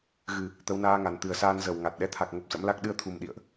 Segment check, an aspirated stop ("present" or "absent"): present